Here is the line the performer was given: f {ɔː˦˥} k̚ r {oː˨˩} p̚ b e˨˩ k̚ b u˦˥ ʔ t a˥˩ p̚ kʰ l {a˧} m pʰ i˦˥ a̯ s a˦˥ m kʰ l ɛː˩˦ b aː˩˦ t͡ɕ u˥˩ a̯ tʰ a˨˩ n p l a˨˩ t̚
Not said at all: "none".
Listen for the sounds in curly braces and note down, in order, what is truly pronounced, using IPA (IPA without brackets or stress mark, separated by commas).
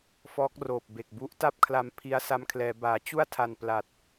ɔː˦˥, oː˨˩, a˧